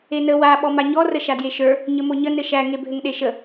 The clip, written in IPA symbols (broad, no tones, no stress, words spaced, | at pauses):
enə wa ɓɔmaɲɔ rəʃadjeʃə˞ | ɲəmoɲə nɘʃæ ŋebʱɘŋɗeʃə